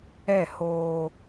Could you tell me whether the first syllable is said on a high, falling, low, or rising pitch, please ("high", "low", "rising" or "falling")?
falling